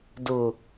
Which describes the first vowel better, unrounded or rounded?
rounded